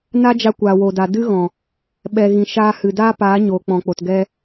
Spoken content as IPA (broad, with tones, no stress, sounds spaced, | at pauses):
n a˦ d͡ʒ a˧ kʷ aː˨ w o˨ d a˨ d ɨ˦ ɣ ɔ̃˨ | ɓ ɛ˨ ɣ ĩ˨ ʃ aː˧ h ɨ˨ d aː˦ p aː˨˦ ɲ oː˨ k͡p ɔ̃˨ k͡p o˨ t ɡ ɛ˧